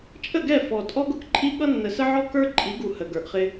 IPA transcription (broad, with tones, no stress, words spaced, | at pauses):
t͡ʃʼə˦˨ɡɛ˦˨ fɔ˨ tʼɔ˦ɡʊ˦kǃʼi˦ ɠʌ˦nːə˨sə˦ʕɔ˦ kə˞˦ǃʼi˨˦ɡu˨ hə˨ɡə˞˨ʔχɪ˦